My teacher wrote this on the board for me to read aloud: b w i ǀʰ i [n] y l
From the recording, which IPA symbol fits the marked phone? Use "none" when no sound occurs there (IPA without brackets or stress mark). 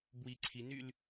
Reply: n